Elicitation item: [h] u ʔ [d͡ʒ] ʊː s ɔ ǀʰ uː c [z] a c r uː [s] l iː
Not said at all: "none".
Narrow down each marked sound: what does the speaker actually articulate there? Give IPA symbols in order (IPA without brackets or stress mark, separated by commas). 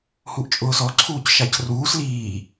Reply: h, t͡ʃʼ, ʃ, s